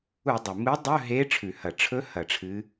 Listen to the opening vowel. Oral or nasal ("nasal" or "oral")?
oral